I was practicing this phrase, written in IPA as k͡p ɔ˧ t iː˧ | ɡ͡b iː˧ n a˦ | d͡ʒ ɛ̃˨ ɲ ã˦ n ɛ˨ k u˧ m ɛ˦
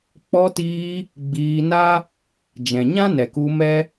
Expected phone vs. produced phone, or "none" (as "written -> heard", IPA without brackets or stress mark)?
none